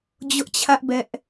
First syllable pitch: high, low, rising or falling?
high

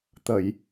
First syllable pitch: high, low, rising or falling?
low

